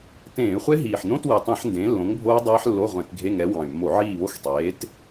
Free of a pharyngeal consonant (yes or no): no